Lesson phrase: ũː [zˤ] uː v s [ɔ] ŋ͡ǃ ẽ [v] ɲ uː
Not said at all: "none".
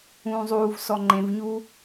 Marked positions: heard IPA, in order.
zˤ, ɔ, v

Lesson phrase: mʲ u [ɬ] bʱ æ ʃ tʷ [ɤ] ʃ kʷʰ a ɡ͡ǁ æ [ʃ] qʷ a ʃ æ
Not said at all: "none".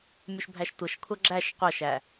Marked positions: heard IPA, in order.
ʃ, ɤ, ʃ

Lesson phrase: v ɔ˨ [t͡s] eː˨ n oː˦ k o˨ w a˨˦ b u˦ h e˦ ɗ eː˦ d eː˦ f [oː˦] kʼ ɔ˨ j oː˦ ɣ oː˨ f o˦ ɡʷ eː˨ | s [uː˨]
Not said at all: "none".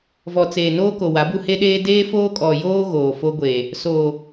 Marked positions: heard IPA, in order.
t͡s, oː˦, oː˨

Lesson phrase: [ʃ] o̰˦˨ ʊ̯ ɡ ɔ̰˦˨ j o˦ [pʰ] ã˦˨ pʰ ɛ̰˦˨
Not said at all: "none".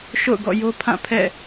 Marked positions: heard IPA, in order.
ʃ, pʰ

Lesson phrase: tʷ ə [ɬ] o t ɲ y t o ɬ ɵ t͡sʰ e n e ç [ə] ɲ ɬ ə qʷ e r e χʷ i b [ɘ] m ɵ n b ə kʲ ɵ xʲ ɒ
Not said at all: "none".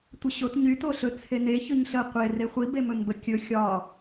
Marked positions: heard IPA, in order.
ɕ, ɵ, e

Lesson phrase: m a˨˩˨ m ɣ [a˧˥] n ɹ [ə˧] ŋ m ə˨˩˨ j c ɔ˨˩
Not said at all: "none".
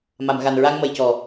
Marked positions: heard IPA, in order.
a˨˩, a˧

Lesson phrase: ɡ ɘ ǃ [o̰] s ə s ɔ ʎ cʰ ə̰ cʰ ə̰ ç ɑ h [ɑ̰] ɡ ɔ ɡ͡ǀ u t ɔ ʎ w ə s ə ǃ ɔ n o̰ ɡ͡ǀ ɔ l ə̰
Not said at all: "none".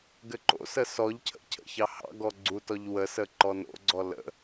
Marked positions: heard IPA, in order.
o̰, ɑ̰

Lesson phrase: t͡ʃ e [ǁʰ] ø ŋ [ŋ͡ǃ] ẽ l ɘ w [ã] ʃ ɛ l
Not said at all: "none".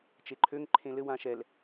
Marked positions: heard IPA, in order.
ǃʰ, ǃʰ, ã

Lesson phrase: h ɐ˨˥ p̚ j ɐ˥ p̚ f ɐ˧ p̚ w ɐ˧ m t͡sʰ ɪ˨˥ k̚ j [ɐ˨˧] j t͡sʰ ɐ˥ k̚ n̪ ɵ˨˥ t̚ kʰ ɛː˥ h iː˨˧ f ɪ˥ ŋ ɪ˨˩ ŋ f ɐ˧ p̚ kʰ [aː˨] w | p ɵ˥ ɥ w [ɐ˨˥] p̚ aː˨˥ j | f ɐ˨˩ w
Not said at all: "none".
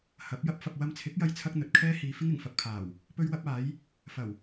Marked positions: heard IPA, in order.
ɐ˥, aː˨˩, ɐ˥

